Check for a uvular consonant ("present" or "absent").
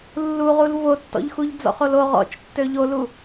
present